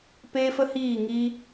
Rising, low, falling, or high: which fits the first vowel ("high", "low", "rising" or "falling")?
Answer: high